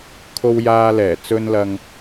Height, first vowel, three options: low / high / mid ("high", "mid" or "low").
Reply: mid